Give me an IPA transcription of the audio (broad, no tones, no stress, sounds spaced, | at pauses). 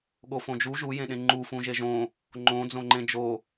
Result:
ɠ o f õ d͡ʒ u ʒ u j ẽ ɗ ẽ ŋ͡ǃ u f ũ ʒ e ʒ õ | ŋ͡ǃ õ d͡z õ ŋ͡ǃ ẽ d͡ʒ o